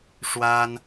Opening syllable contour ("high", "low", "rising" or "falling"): high